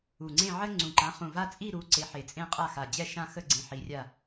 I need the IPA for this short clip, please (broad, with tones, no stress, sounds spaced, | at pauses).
u˨˩ ŋ͡ǀ ẽ˥˧ ʕ ə˥ ŋ͡ǀ ũ˨˩ ǃ ã˨˥ χ ũ˨˩ v a˥˧ t͡sʼ i˥˧ ɾ u˨˥ ǀ e˨˥ ħ e˨˩ t͡sʼ ẽ˥ qʼ a˥˧ x a˨˩ d͡ʑ ɛ˥˧ ʃ ã˥˧ x ə˥˧ ɡ͡ǀ ĩ˨˥ ħ i˨˥ rʲ a˥˧